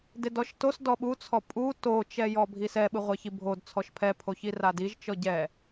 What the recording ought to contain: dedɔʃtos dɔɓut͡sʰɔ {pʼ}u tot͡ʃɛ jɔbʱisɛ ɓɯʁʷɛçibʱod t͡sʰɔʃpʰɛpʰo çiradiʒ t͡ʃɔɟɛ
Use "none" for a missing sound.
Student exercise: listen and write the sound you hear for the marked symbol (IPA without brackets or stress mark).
pʼ